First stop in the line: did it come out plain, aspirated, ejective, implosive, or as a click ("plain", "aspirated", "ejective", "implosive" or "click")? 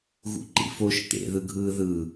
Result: click